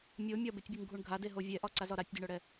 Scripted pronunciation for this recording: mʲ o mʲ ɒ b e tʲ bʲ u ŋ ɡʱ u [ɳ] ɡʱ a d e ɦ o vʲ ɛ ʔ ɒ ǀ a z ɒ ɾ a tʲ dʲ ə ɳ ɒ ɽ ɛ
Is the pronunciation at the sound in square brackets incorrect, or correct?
correct